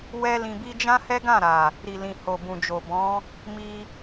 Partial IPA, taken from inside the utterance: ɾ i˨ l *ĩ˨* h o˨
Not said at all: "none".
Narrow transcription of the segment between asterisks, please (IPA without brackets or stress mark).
ĩ˨